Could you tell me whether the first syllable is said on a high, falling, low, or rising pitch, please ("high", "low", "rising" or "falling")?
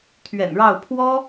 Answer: low